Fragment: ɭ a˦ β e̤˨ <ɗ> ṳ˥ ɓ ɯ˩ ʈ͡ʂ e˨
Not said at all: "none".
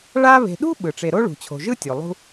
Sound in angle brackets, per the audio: ɗ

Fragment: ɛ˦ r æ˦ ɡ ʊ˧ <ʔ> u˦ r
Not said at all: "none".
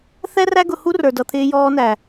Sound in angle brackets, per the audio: h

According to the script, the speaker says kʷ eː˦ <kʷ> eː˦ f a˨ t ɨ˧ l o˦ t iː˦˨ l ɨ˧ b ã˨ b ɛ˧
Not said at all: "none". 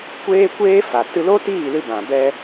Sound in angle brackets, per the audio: kʷ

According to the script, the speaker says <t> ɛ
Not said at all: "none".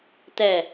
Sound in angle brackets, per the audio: t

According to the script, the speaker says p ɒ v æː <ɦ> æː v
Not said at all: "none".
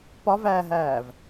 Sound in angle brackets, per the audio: ɦ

